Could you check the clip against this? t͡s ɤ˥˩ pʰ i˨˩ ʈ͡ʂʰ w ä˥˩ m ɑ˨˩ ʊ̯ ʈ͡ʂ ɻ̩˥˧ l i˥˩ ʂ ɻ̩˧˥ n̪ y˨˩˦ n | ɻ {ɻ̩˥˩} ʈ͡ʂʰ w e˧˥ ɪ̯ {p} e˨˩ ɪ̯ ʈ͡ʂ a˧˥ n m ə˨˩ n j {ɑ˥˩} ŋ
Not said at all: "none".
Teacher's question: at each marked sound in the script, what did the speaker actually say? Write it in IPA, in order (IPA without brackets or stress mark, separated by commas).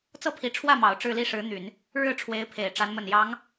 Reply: ɻ̩˥˩, pʰ, ɑ˧˥